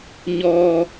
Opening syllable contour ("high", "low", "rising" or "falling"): high